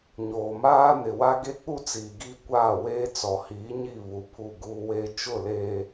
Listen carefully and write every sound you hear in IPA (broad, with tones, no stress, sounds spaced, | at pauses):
ɲ oː˨ m aː˦ n ɪ˨ w a˦ ɡ e˦ k͡p u˦ t͡s iː˨ ɡ i˦˨ kʷ aː˦˨ w eː˦ t͡s ɔ˨ h iː˨˦ ɲ i˦˨ β u˨ pʰ u˦˨ ɡ uː˦ w eː˦ t͡ʃ ʊ˦˨ l eː˨